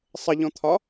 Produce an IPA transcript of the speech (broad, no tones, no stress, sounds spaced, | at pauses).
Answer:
sˤ ə ʎ ɔ̃ t̪ʰ ɒ